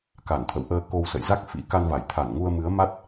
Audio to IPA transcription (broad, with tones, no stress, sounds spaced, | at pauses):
k a˧˩ n t̪ʰ ə̰˧˨ w ʔ əː˧ k o˧ w s ə̰˧˨ j z a˦˥ k̚ f ḭ˧˥ k a˧ n v a˧˩ j t̪ʰ a˧˩ n ŋ u˧ ə̯ m ɨ˨˦ ə̯ m a˦˥ t̚